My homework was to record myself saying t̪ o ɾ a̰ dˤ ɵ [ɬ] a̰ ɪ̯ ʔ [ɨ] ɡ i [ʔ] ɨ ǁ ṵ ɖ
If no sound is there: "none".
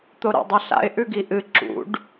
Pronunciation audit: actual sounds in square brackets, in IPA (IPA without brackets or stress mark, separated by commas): ɬ, ʉ, ʔ